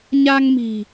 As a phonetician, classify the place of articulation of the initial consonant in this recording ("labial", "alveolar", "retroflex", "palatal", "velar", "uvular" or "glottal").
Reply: palatal